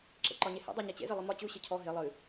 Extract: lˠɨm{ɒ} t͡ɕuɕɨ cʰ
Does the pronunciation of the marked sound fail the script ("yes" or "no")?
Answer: no